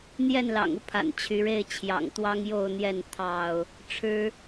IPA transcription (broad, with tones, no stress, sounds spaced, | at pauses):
n̪ j ɛ˥˨ n l ɑ̰˨˩ ŋ u˦ pʰ a̰˨˩ n t͡ɕʰ y˨˦ ɻ e˥˨ ɪ̯ t͡ɕʰ j ɑ̰˨˩ ŋ t̪ w ɑ˦ ŋ j o˥˨ ʊ̯ n̪ j ɛ˥˨ n t̪ʰ ɑ˥˨ ʊ̯ | ʈ͡ʂʰ ɻ̩˦